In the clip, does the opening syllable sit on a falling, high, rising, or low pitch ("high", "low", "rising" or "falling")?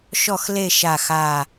falling